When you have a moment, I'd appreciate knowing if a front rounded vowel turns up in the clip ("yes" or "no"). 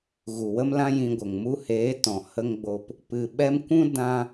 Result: no